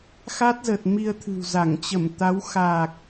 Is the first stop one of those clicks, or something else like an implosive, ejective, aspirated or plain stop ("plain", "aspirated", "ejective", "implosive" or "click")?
plain